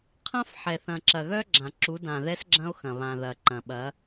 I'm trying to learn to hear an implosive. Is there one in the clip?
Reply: yes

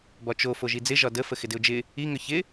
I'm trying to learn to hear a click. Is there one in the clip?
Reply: no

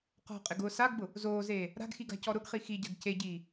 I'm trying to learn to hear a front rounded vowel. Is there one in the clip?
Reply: no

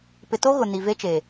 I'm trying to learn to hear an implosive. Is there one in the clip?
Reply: no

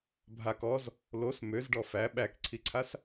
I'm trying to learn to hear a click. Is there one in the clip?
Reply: yes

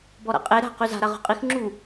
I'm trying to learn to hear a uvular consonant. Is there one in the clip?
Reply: yes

